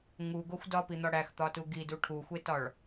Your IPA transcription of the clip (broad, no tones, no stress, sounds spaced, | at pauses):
ŋ u ɡ o xʷ d ɒ p i n̪ ɒ ɽ æ x t̪ ɒ t u ɡ i d u ʈʰ u xʷ e t ɒ ɭ